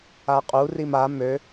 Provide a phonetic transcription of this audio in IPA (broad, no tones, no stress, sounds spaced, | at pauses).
a qʼ u r i m a m ø